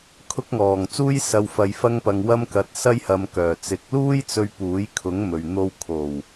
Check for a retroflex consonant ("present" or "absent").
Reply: absent